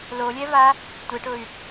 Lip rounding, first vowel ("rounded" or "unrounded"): rounded